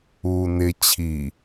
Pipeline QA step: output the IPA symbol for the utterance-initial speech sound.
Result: uː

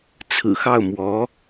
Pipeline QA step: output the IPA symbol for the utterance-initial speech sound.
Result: t͡sʰ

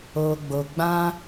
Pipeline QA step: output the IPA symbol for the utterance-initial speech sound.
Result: o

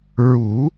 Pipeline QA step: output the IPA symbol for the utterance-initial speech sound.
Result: ɹ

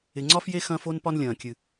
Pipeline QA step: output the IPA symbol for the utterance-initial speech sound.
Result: ɪ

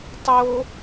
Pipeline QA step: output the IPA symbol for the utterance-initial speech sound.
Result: tˤ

